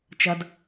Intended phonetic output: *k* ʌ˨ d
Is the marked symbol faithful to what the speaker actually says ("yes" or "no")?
no